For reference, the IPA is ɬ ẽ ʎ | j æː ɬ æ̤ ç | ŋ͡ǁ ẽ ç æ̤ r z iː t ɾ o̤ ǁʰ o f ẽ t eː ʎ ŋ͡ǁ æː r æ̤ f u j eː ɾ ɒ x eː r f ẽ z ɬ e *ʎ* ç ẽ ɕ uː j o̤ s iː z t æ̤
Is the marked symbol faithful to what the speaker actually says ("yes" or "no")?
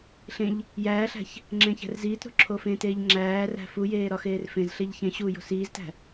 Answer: yes